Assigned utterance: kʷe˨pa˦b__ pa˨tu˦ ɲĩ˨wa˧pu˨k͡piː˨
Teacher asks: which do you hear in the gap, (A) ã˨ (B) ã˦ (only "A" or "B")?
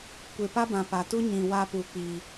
A